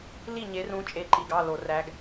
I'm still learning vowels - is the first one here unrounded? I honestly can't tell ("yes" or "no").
yes